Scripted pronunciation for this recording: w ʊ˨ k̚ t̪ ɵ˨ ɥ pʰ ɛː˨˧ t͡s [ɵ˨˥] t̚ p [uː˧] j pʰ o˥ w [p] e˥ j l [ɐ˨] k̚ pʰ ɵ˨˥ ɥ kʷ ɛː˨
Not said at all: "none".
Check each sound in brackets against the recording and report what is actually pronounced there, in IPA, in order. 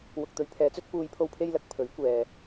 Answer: ɵ˥, uː˧, pʰ, ɐ˨

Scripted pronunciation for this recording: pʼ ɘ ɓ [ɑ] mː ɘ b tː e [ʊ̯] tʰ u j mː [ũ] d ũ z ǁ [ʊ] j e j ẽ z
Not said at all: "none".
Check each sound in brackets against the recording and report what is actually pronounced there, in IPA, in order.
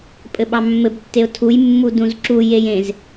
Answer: ɑ, ʊ̯, u, u

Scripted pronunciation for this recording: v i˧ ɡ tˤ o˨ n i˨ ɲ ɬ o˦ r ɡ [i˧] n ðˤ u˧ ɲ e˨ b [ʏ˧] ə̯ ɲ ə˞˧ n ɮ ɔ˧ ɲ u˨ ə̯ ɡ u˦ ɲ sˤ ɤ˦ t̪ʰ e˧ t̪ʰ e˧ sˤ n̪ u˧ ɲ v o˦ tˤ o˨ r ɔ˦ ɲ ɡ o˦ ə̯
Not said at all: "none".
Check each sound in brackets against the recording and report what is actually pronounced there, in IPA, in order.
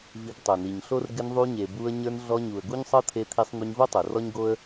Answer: ɪ˧, u˧

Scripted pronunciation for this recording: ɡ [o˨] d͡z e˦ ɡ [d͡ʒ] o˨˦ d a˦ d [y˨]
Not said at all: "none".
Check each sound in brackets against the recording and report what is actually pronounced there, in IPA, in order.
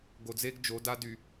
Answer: o˨, d͡ʒ, y˨

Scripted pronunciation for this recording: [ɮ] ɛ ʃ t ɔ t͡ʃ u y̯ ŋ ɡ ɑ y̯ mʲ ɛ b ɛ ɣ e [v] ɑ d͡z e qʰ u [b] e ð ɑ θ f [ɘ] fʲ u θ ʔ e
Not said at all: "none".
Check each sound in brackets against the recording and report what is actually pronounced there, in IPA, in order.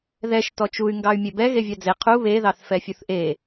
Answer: ð, vʲ, β, ɛ

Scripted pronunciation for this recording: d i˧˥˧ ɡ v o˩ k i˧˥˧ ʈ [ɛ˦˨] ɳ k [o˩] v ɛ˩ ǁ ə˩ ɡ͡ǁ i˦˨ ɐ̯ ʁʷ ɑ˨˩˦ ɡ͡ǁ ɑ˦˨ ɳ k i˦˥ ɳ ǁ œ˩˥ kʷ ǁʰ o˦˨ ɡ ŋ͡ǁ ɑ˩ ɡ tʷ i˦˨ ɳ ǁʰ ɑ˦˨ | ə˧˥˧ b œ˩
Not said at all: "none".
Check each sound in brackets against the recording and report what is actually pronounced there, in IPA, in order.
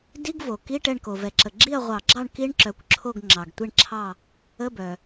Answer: ɛ˦˨, o˩

